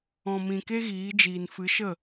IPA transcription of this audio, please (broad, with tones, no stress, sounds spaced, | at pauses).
ɔ̃˨ m ĩ˨ k e˦ ɣ iː˨˦ d͡ʒ iː˨ n f ɨ˨˦ ʃ ə˦˨